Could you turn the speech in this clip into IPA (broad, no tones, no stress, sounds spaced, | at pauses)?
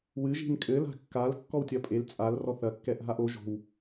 w ɨ ʒ i̤ n kʼ ɘ l a̤ kː a l kː ɔ w tʲ ɐ pʼ e l t͡sʼ a l r ɔ θ ɐ kː ɛ ʔ ɦ a ʔ o ʒ o̤ w